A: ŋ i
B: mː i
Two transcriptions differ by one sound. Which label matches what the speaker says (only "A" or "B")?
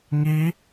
A